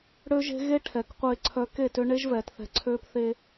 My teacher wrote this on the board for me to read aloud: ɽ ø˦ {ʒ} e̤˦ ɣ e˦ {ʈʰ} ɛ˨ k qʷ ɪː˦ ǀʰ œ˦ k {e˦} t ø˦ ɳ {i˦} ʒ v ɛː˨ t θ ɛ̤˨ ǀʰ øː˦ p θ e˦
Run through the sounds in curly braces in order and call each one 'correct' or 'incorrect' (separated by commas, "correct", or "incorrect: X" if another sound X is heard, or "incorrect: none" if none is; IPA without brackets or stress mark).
correct, correct, incorrect: e˦˨, incorrect: e˦